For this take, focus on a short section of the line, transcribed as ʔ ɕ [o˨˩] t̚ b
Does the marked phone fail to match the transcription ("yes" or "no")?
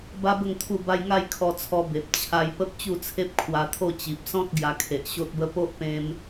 yes